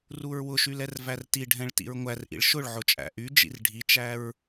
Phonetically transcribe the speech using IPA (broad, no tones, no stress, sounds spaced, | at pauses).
r u ɹ w ʊ ʃ y l ɛ r v æ r t i ɖʱ ɛ̃ ɭ t ḭ ɹ ŋʷ æ r ʔ ḭ ɭ ʃ ʊ ɭ ʕ ʊ t͡ʃʼ æ̰ ʔ y d͡ʒ ḭ r ɖʱ i t͡ʃ æ ɹ